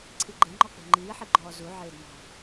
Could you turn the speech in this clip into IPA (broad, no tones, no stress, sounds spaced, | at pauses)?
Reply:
ǀʰ i ɡ͡ǃ e ŋ͡ǃ ɔ k͡p e̤ ŋ͡ǃ iː ħ i ɡ͡ǃ ɔː z u ʕ eː d m ɔ̤